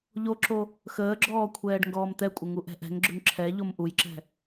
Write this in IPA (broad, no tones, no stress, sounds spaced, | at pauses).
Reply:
ʎ o ǁ o | x əː ɡ͡ǁ ɔː kʷʰ ɛː ɖ ŋ ɡ ɔː m t̪ ɛ kʷʼ ə ŋ u ʔ ɛ̤ ʔ ɛ̤ ŋ ɡ͡ǁ ʏ ŋ ǁʰ ɛ ʎ o m ʔ u j ǁ ɛ̤